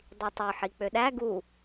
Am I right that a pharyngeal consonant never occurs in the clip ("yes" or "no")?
no